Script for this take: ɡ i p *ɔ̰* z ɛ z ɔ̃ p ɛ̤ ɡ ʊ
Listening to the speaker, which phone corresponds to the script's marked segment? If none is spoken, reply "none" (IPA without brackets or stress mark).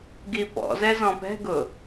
ɔ̰